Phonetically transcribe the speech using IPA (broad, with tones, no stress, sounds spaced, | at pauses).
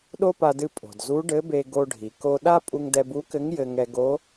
ɗ o˥ p a˧ d ɨ˧ pʼ o̤˩ d z u˧˥ ɖ ɘ˧˥ b e˧ ɡ o˧ ɖʱ i˩ k o˧ ɗ a˥ pʼ u˧ ŋ d ɛ˧ b u˧˥ k ɘ˧˥ ŋ j ɘ˧ ŋ ɛ˧ ɡ o˧˥